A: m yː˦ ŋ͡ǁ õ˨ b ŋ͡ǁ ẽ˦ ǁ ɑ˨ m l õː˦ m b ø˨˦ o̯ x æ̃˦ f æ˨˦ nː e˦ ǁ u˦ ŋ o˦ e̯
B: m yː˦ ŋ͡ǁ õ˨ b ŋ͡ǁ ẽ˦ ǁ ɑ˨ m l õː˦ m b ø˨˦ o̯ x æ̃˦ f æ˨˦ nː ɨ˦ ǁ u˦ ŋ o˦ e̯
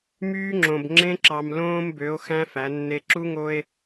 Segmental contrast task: A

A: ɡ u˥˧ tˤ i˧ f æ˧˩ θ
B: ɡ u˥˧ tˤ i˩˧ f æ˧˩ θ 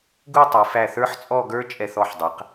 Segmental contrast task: B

